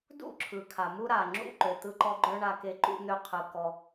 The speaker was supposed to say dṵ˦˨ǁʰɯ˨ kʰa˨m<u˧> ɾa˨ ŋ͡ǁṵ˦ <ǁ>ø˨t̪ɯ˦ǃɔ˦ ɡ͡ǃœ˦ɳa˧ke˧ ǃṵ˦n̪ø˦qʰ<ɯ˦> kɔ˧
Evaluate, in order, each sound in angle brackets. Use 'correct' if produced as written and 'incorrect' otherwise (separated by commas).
incorrect, incorrect, incorrect